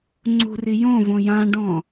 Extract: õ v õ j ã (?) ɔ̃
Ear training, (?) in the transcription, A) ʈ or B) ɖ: B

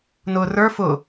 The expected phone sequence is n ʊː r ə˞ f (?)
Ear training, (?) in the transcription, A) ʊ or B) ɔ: A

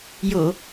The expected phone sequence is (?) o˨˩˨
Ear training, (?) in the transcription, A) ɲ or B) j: B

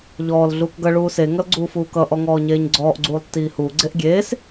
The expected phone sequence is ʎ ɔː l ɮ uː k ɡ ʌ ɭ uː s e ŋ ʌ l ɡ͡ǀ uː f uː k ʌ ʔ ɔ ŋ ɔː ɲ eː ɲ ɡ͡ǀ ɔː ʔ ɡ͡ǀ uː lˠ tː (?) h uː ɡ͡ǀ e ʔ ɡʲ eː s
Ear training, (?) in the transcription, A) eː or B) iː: B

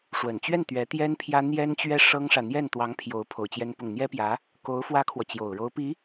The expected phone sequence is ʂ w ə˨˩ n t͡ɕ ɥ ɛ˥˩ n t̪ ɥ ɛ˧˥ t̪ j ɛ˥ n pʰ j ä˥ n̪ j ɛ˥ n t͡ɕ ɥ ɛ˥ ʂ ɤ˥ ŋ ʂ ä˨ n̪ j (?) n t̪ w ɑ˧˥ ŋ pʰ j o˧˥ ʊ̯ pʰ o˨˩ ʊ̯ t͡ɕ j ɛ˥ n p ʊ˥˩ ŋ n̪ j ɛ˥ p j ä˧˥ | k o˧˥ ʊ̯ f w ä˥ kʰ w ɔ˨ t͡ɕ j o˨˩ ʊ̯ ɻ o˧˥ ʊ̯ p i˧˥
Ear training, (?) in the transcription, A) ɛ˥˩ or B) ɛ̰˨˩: A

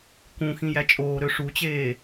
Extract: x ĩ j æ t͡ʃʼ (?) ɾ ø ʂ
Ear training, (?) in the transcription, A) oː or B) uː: A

